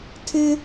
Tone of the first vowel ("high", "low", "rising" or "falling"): high